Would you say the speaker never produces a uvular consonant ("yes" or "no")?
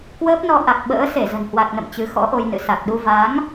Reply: yes